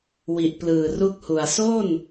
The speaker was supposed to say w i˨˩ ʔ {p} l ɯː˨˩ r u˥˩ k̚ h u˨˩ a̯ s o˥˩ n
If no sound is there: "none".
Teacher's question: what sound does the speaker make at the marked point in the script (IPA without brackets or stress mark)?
p